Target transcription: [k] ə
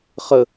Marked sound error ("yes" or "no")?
yes